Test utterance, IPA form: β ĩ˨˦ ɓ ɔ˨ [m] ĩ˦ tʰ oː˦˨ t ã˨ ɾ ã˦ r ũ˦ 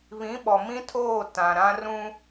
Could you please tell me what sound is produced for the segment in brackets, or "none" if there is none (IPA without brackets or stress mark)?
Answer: m